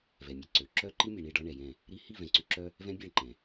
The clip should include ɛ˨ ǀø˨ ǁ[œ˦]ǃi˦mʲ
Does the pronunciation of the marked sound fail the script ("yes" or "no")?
no